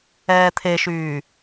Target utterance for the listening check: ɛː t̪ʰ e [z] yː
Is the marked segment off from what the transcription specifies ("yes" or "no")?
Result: yes